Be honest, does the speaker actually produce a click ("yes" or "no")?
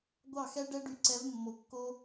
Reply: yes